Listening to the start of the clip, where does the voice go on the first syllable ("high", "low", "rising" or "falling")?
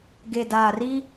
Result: low